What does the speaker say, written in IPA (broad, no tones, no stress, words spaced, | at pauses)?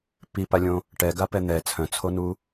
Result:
pipalʲõ | ʈɛɡapɛ n̪ɛ t͡sʰœ̃t͡sʰonu